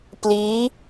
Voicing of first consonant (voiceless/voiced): voiceless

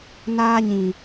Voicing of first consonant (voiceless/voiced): voiced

